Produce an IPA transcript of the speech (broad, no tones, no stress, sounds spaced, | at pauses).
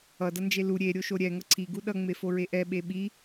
ʌ d ʌ n d͡ʒ e l u ɾʲ e ɾʲ o ʃ o ɾʲ ɛ ŋ ʌ ǀʰ i ɡ u ɗ ʌ ŋ͡m e f o ɹ e ʔ ɛ ɓ e ɓ i